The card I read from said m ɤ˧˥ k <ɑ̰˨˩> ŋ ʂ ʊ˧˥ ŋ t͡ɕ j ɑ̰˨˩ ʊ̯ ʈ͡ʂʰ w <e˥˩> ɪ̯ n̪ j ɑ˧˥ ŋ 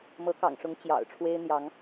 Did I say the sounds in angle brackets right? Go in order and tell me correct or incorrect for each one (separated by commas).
correct, incorrect